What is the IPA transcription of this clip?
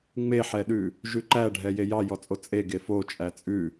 ŋ͡m e ħ ɛ ɗ ʉ | ʒ ʉ ǃ æ ɖʱ ɛ j e j ɑ j ɔ t͡sʼ o t͡sʼ e ɡ e f o t͡ʃʼ æ t͡sʼ ʉ

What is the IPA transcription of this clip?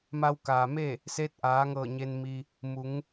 m a˧ w k aː˩ m e˥˨ | s eː˧˥ t̚ ʔ aː˩˧ ŋ ɤː˧˩ ɲ e˧ n m i˧ | m u˩˧ ŋ

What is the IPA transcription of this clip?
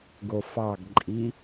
ɡ o f ɑ ɡ ǃʼ i

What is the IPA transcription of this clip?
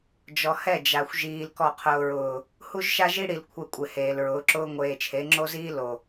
d͡ʒ ɔ˨ h ɛ˦˨ d͡ʒ a˨ xʷ ʒ iː˨ l k ɔ˨ qʰ ʊː˨ ɹ ʊː˨ | h u˦ ʒ ʃ a˦ ʒ i˦ ɽ i˨ l kʷʰ ɛ˦ kʷʼ ɪ˨ h eː˨ l ɹ ʊː˨˦ ǁ ʊː˦ ŋʷ eː˨ t͡ʃʰ e˨˦ ŋ͡ǁ o˦ z iː˦ l o˨

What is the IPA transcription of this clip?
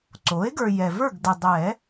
ǀ o˩˥ e̯ ɡ ə˞˨ j ɛ˨ v ə˞˥˨ ɡ d ə˨ dˤ ɛ˨˩˦

